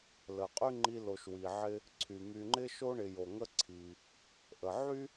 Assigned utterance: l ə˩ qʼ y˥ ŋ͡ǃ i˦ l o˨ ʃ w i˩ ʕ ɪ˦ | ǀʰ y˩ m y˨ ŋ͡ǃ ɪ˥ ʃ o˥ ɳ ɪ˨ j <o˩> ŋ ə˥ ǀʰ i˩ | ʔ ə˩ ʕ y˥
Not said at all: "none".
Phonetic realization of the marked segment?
o˩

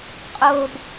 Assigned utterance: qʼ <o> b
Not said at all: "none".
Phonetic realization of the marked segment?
o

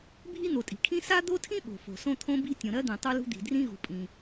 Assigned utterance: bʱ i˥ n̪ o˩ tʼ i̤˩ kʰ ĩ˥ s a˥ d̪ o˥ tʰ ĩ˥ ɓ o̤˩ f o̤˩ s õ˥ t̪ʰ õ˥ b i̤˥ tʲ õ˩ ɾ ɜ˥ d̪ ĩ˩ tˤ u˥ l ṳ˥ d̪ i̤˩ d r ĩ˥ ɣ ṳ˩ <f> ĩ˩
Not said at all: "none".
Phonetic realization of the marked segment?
pʼ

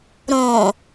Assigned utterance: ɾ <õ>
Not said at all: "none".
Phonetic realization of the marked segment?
õ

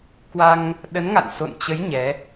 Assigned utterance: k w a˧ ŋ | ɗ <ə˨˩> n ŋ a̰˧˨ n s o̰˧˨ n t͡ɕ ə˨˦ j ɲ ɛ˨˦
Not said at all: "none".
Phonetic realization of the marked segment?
ə˨˦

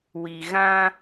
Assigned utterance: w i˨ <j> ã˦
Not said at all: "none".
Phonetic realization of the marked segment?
ɣ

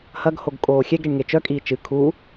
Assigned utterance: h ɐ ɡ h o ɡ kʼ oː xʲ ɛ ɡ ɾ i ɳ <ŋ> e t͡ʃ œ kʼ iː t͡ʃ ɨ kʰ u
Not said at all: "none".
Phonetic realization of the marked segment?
ŋ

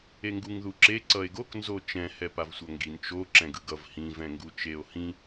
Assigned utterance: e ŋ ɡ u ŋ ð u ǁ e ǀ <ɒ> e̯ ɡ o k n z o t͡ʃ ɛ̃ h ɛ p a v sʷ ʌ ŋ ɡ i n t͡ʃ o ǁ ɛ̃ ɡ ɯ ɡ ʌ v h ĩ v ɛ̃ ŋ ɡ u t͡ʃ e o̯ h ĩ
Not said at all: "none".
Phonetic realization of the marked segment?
ʌ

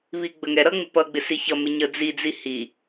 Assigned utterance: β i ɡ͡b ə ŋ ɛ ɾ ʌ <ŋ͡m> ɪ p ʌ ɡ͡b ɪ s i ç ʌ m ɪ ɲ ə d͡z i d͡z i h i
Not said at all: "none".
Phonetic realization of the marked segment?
ŋ͡m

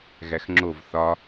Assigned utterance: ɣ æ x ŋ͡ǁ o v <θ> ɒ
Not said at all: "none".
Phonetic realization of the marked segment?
θ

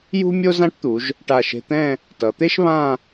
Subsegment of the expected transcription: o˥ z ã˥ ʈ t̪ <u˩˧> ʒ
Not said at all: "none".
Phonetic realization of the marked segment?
u˩˧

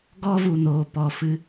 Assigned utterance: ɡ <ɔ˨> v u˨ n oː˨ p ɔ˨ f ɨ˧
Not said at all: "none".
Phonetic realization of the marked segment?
ɔ˦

